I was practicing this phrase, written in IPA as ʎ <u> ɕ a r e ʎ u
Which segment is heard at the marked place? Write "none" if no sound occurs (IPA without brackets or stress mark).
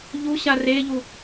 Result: u